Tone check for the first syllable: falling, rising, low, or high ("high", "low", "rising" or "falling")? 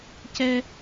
high